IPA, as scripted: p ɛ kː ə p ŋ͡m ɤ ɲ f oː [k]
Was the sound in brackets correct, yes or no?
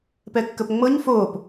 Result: no